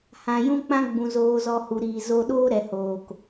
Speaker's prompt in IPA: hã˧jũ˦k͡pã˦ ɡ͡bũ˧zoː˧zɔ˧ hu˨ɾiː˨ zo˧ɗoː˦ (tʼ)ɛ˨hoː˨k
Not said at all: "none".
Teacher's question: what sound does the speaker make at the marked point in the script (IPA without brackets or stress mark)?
ɾ